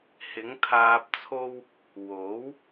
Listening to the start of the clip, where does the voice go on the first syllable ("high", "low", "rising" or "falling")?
rising